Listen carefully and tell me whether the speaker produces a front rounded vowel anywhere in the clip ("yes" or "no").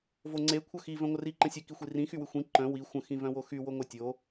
yes